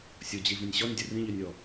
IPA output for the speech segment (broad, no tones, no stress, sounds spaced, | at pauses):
sʲ o d͡ʑ i v ĩ nʲ ɕ ɔ nʲ dʲ ə r ĩ ʎ ø nʲ ɔ